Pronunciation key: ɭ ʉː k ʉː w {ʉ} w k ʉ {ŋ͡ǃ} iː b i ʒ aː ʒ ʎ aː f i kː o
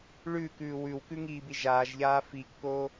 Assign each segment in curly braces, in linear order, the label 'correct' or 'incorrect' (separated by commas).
correct, incorrect